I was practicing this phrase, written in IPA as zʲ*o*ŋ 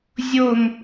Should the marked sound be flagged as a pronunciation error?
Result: no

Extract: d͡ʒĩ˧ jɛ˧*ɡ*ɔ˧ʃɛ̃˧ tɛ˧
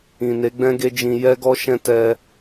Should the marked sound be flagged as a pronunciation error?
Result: no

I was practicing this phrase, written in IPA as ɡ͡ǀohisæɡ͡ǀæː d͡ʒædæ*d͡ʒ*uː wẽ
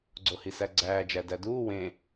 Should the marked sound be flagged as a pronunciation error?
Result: yes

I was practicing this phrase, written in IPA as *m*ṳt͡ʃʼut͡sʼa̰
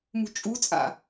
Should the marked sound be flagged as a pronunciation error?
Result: no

